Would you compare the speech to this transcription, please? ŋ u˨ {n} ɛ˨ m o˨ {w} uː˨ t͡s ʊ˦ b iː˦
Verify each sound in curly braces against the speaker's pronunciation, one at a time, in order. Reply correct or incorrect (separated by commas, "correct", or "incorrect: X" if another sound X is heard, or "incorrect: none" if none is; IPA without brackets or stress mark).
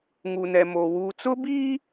correct, correct